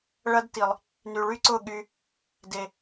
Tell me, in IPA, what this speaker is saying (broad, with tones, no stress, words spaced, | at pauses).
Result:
ɭɐ˦dti˨lˠ | ny˨ ɭy˦ǀʊ˦˨ ɠy˧ | de˨